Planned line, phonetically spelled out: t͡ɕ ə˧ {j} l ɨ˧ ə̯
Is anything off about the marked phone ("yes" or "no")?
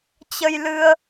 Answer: no